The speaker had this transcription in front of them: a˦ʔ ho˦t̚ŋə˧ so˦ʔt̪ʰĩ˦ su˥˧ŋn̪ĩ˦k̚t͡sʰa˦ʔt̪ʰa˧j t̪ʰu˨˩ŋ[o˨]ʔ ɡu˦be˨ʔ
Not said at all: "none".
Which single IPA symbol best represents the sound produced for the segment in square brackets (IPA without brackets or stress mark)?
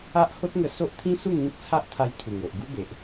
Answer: o˨